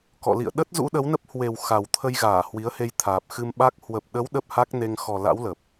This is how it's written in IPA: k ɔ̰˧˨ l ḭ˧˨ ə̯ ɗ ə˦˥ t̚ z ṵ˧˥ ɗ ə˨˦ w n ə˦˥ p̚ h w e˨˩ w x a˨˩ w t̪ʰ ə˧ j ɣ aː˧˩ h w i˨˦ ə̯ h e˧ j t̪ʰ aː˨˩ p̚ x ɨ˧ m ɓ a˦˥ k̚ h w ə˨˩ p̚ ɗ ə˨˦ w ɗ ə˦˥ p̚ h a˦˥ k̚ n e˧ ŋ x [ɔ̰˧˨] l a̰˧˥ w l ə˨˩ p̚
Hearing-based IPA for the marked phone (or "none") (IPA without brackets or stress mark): ɔ˨˩